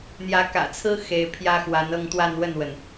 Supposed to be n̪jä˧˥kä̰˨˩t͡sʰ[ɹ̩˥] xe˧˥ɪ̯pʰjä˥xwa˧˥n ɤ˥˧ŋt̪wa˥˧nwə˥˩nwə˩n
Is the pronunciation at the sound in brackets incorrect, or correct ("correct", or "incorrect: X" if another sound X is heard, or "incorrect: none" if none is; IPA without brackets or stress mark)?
correct